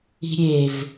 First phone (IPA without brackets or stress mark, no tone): i̤